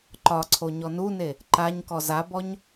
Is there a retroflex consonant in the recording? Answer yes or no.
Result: no